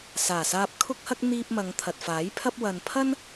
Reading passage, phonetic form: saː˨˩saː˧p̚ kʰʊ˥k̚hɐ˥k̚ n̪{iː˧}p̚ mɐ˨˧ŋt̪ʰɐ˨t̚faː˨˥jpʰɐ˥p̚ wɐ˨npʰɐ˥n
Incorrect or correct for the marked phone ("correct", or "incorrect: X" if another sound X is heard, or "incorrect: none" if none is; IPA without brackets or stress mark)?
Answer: correct